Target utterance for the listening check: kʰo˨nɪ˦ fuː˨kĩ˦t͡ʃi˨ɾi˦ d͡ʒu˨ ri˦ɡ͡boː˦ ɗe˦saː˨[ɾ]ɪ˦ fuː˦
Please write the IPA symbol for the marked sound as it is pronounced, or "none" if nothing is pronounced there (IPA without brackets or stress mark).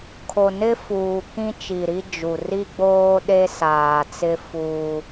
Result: t͡s